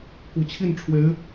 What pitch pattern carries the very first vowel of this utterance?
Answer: low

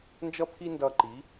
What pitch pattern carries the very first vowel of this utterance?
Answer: high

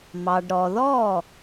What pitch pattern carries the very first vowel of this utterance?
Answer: low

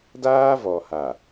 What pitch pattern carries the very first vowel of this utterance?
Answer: high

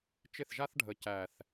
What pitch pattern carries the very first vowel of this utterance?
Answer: falling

